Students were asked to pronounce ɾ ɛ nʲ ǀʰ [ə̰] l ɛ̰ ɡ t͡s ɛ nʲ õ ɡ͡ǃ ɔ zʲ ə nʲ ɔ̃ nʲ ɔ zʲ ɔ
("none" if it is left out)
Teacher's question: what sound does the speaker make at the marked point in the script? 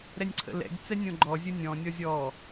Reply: ə̰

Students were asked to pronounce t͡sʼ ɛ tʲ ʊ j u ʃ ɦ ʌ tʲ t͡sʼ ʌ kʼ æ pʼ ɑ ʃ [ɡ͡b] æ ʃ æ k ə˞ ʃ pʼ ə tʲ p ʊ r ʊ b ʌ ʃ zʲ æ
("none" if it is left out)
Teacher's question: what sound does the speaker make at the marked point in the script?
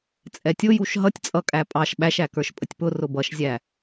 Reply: ɓ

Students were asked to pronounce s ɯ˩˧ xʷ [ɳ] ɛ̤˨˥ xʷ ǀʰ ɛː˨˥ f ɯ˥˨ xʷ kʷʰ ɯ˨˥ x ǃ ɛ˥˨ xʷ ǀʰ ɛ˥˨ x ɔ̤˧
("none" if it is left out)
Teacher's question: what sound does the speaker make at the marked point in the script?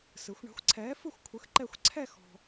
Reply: ɳ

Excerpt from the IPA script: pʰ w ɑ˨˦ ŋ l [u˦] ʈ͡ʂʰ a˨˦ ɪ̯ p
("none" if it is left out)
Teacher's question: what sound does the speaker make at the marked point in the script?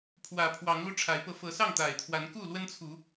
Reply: u˦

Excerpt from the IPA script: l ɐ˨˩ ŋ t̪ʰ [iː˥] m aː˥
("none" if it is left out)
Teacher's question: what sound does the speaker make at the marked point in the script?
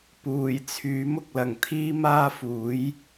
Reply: iː˥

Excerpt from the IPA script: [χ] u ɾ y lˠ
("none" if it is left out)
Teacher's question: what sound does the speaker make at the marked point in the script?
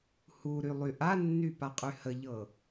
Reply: h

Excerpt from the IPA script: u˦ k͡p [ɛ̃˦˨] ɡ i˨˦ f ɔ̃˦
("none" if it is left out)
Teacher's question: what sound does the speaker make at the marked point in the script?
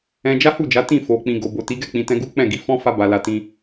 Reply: ɛ̃˦˨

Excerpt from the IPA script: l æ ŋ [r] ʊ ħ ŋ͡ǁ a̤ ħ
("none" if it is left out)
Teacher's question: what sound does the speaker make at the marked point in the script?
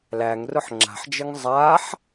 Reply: r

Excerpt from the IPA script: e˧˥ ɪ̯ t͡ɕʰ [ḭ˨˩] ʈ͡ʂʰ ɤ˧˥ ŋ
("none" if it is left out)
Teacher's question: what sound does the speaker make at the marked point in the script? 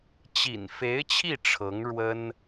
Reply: i˥˩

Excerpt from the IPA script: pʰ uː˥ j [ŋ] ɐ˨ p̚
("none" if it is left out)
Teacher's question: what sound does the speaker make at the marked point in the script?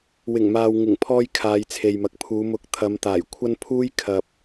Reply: kʰ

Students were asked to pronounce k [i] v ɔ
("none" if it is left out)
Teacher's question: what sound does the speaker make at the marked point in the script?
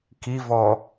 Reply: i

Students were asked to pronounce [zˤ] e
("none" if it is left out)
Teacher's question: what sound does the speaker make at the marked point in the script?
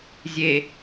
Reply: zʲ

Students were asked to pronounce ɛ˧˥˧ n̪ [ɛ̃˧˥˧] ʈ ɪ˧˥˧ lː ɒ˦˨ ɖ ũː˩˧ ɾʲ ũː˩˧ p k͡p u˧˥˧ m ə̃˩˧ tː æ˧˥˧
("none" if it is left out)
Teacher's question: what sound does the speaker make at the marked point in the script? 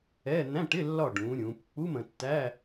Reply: æ̃˧˥˧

